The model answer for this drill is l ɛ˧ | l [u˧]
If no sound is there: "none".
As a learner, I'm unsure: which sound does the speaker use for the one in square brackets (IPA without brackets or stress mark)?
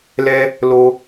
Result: o˧